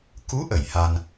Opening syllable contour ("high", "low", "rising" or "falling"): rising